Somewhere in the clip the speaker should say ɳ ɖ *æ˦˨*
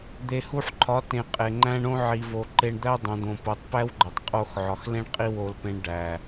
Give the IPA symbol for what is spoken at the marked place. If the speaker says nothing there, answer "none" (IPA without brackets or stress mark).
æ˨